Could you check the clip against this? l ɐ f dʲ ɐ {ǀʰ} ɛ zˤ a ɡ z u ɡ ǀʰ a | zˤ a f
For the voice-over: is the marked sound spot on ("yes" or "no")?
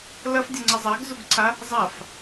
no